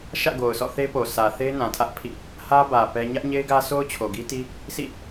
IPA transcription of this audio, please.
ʃ ä̰˦˨ ɡ o˨ ʊ̯ s ɔ̰˦˨ θ e˦ p o˨ s ä˨ θ e˦ ɪ̯ n ã˨ tʰ ä˦ ʔ pʰ ḭ˦˨ | h ä˦ b ä˨ p ɛ˦ ɲ ä˦ ʔ ɲ e˦ ɪ̯ ɡ ä˦ sʰ o˦ ʊ̯ t͡ɕʰ o˨ ɡ i˦ t i˦ | sʰ ḭ˦˨

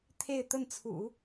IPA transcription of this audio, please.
t̪ʰ e˥˧ ɪ̯ t̪ ə˥˩ n t͡sʰ ṵ˨˩˦

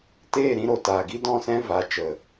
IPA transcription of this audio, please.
t eː˦˨ ɾ ĩ˧ ɾ o˨ t aː˨ ɡ i˦ d ɔ̃˦˨ s ɛ̃˦ v a˨˦ t͡ʃ ə˨

